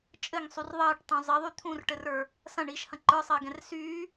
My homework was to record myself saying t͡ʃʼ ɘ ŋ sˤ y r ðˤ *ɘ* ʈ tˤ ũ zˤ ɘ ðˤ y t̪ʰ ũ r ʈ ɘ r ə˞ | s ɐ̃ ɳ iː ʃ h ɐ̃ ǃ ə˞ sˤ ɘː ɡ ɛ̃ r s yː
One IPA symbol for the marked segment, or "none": ɘː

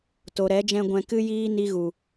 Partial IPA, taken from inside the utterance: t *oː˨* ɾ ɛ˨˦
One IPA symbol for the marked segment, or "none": o˨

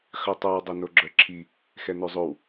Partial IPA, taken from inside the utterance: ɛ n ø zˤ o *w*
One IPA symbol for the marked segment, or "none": w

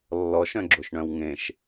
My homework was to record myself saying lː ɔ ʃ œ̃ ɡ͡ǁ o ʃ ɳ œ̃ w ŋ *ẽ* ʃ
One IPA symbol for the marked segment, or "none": ẽ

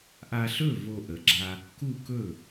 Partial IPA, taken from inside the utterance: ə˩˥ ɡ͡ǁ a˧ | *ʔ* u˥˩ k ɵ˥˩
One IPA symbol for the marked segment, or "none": k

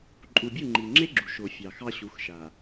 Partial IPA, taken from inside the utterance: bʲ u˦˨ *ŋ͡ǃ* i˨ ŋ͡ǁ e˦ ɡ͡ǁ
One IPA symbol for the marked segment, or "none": ŋ͡ǃ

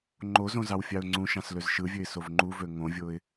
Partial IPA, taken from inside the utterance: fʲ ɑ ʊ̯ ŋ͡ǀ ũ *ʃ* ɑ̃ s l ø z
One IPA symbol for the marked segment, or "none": ʃ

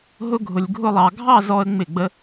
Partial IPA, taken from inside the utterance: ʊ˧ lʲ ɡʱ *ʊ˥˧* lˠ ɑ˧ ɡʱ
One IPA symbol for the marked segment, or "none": ʊ˥˧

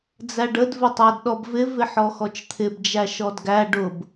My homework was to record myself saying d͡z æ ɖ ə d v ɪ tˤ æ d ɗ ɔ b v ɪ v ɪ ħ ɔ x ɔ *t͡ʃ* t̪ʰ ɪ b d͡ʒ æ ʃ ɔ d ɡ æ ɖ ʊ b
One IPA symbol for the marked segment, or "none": t͡ʃ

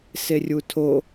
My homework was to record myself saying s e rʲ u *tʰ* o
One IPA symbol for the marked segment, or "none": tʰ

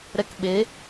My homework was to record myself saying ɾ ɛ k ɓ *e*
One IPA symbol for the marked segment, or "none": e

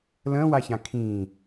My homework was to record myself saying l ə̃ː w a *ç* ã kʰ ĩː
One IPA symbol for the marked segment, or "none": ç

